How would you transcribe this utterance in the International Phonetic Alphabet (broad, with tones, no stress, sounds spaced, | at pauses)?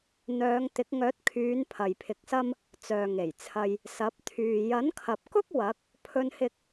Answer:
n̪ œː˨˧ ŋ t̪ ɪ˨˥ k̚ ŋ œː˨˥ t̚ kʰ yː˨˧ n pʰ ɐ˨ j pʰ ɪ˨˥ k̚ s ɐ˥ m | t͡s œː˨ ŋ e˨˩ j t͡sʰ ɐ˧ j | s ɐ˨˥ p̚ t̪ʰ yː˨ j ɐ˨˥ n kʰ ɐ˨ p̚ k ʊ˥ k̚ w ɐ˨˥ k̚ | pʰ ɵ˧ n h ɪ˧ k̚